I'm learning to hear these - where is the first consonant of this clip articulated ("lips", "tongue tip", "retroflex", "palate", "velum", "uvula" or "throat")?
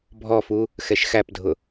lips